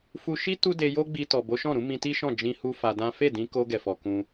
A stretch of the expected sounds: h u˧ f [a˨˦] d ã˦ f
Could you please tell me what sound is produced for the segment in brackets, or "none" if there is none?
a˧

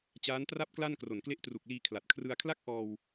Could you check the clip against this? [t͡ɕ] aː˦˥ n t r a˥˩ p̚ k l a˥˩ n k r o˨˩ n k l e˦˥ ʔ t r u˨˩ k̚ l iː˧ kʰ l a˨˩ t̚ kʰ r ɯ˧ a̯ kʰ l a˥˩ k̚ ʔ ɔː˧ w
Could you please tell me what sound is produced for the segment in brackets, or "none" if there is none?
t͡ɕ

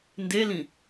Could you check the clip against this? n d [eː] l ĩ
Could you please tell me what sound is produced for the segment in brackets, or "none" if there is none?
e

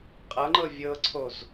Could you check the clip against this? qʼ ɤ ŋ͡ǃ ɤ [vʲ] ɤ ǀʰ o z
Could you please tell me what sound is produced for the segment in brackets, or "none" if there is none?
vʲ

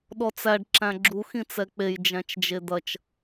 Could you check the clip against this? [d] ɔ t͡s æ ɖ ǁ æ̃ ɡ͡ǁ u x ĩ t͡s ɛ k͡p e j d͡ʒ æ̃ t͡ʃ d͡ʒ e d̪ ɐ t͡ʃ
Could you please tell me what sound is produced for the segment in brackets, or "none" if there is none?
ɗ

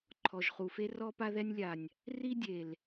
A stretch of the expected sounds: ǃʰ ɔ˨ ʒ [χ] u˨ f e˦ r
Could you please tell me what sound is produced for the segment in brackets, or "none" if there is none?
χ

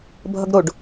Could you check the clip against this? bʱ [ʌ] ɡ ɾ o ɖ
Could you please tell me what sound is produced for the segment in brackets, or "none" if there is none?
ʌ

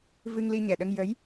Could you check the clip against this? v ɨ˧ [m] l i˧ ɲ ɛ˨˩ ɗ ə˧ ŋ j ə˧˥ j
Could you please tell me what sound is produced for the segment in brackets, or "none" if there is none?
ŋ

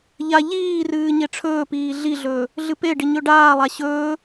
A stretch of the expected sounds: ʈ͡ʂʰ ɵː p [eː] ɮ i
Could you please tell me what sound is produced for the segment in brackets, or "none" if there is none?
iː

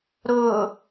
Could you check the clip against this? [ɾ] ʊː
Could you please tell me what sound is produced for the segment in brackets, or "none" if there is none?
ɾ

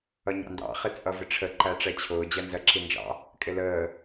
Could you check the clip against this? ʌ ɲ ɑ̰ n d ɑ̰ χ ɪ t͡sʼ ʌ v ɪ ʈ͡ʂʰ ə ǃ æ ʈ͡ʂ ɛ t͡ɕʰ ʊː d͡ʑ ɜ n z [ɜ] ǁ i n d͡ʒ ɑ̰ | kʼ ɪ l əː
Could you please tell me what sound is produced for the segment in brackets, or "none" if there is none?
ɜ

